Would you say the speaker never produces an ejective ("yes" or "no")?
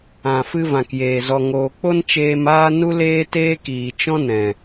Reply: yes